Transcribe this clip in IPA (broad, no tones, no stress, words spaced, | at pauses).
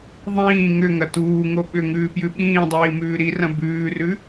ðˤĩː ŋʏ ŋɐtuːŋo ɓʏ ŋʉːpjʉɓĩːdˤiː mʉːɾirɐ̃ bʉːrʉ